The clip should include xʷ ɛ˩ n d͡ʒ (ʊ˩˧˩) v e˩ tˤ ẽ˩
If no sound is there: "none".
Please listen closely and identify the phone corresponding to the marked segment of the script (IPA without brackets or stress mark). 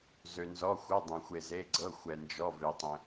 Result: ɔ˩˧˩